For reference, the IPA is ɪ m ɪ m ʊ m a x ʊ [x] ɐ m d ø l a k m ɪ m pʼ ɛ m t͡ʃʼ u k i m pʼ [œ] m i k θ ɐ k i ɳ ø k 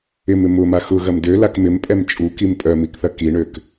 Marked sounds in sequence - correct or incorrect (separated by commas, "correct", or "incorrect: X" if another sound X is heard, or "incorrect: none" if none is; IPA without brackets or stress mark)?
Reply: incorrect: ɣ, correct